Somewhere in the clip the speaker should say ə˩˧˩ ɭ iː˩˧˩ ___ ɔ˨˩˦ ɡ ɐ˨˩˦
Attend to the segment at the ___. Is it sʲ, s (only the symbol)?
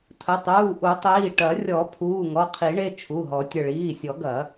sʲ